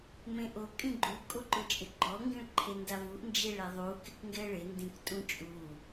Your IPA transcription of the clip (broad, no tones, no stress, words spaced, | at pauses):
mẽʔo kʼĩɡ͡ǃu kʼoǃʊt͡ʃʼɪɡ͡ǃɔ ŋɡĩɭǃʰendavuʔ nd͡ʒeɭɛðˤu kɪkŋɡɛɭɪ ndĩktʼũt͡ʃʼu